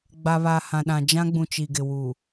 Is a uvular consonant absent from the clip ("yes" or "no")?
yes